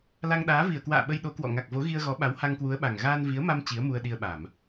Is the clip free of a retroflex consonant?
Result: yes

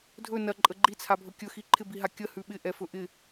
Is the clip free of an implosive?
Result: no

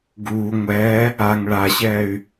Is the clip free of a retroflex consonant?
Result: no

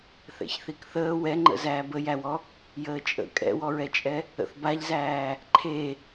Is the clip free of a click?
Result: no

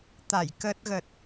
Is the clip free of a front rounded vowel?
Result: yes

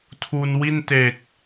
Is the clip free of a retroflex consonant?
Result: yes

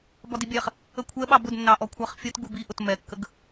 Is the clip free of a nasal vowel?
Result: yes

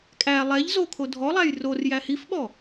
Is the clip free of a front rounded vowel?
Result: yes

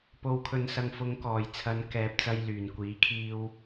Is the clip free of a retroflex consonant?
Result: yes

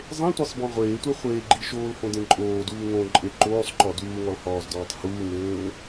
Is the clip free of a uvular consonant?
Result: no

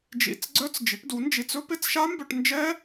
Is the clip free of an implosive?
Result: yes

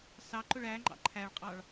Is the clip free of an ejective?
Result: no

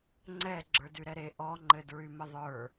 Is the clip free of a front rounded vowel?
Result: no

